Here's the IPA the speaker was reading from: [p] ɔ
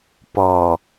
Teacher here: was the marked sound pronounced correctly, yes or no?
yes